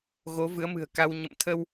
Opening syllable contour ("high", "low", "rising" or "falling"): rising